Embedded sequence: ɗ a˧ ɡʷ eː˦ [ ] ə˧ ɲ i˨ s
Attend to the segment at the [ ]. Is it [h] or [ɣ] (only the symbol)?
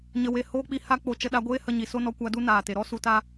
h